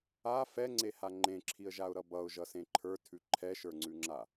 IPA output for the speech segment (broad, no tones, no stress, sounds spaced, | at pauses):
a f ɛ ŋ͡ǀ e h a ŋ͡ǃ ẽ ǁʰ i ə̯ ʒ a ʊ̯ ɾ ʌ b ʌ ʊ̯ ʒ ʌ s ẽ ǃʰ ə˞ tʰ ʉ ǃʰ ɛ ʃ ə˞ ŋ͡ǀ ʉ ŋ͡ǁ a